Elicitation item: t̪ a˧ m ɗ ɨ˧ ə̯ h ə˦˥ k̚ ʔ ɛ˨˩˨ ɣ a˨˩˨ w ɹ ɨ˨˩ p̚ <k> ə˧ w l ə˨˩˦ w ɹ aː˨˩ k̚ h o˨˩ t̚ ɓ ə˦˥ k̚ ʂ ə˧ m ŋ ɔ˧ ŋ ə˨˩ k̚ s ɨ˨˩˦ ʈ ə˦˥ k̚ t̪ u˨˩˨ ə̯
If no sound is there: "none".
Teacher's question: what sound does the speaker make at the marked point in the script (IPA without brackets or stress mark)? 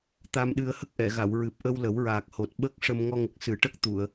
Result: ʔ